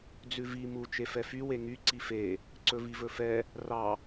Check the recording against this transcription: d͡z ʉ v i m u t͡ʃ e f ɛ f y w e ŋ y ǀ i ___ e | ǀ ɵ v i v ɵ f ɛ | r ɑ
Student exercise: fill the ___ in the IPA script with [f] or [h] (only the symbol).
f